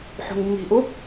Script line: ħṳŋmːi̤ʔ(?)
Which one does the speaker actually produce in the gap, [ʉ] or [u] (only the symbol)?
u